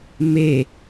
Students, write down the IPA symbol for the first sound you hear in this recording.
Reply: m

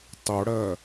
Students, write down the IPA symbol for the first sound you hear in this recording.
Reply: tˤ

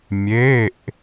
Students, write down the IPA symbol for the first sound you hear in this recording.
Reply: mʲ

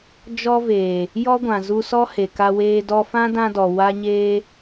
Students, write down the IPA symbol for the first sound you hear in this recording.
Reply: d͡ʒ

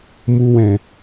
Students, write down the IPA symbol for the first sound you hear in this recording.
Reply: m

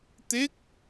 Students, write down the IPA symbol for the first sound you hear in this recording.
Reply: t̪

